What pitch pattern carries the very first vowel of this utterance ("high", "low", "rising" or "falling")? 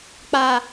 low